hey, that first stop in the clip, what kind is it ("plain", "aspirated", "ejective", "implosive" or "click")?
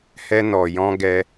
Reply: plain